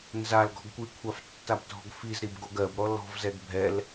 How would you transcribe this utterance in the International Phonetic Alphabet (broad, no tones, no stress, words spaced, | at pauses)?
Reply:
nzal ɡɔ̤ɡkʷikʷʰaf tːabdʱɔ̤ɡfizɾib ɡoɡɜbɾɔ lɔ̤vzɛɡ bʱɛl